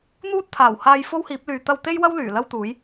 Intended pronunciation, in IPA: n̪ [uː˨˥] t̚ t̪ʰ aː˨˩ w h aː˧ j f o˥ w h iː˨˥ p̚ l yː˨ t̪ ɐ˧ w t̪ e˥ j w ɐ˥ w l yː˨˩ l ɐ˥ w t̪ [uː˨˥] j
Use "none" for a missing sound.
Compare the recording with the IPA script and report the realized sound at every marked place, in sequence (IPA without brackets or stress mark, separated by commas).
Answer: uː˥, uː˨˥